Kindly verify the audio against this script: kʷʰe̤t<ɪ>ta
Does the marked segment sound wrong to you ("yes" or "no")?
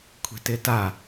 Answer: no